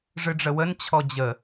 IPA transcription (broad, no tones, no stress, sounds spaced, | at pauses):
ʐ ɨ ɖ͡ʐ ə w ə n t͡ɕʰ ɔ d͡ʑ ə